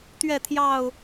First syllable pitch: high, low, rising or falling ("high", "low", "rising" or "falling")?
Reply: falling